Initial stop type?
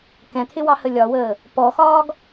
plain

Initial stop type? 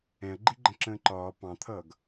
click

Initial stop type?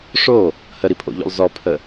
aspirated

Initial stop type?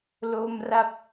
plain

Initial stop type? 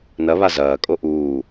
ejective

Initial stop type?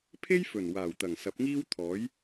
aspirated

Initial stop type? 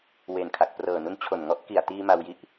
aspirated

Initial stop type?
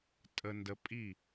ejective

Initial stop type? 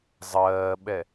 implosive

